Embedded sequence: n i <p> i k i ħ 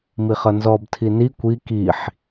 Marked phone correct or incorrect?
incorrect